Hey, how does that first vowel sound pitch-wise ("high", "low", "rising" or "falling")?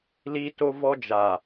high